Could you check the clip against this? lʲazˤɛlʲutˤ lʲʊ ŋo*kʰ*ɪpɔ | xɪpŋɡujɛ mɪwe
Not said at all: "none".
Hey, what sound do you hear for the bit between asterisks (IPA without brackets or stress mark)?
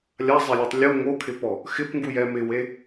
kʰ